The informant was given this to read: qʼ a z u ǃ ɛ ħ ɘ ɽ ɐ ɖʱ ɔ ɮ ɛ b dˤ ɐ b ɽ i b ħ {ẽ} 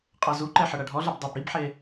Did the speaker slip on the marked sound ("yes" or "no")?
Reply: yes